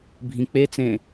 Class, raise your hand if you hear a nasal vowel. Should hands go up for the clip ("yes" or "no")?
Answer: yes